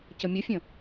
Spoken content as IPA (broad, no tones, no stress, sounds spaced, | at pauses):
c ə mʲ ə fʲ ə̃